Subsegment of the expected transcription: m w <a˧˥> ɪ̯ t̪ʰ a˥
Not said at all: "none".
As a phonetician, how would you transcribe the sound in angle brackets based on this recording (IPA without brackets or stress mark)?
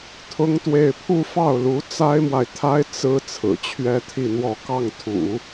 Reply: a˨